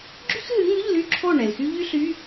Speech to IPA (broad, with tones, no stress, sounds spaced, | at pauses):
ɡ͡ǁ y˥ x ɦ ɨ˨˥ ŋ ʉ˧˥˧ ʎ l y˥˨ ǁʰ o˥˨ ɳ ɛ˩ l x y˥ ʎ y˥ ɬ y˧˥˧